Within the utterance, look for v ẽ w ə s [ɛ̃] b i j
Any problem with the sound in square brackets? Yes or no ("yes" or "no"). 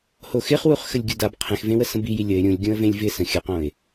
yes